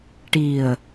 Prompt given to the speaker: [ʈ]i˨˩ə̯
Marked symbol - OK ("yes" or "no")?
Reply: yes